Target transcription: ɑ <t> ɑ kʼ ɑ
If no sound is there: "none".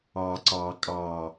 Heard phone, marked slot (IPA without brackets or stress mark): ǀ